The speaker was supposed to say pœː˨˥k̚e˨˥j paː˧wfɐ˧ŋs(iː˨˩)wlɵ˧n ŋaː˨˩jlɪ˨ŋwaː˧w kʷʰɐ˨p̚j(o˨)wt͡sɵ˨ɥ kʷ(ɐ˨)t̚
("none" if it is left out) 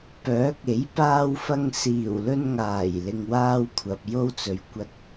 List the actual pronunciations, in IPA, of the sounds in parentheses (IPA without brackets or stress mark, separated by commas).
iː˨˩, o˥, ɐ˨